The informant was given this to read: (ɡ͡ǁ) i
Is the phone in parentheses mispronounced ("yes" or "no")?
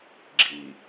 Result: no